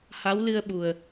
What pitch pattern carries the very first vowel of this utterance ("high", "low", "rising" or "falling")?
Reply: rising